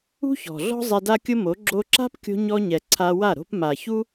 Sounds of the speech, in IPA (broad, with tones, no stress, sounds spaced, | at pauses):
ṳ˦ ç ɔ̤˨ ɮ ɔ̤˦ zˤ ɛ˧ d a˦ kʲ ʊ˦ m o˨˦ ɡ͡ǁ o˧ ǁ a̤˦ p kʲ o̤˧ ɲ ɔ˧ ɲ ɛ˨ ǀʰ a˧ w a˦˨ ɾ o̤˦ p m a˨ ç u˦